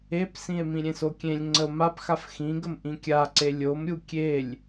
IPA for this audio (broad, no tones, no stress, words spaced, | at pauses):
epsĩe̯ mĩɾʲẽsokʲẽlʲ ŋ͡ǀəo̯mapxaf xĩɡəm ʔĩkʲaǀe lʲomɾʲu kʲelʲ